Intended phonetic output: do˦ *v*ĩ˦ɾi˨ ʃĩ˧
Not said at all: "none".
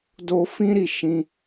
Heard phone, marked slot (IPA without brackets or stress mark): f